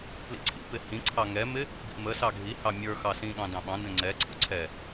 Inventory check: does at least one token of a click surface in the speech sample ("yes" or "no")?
yes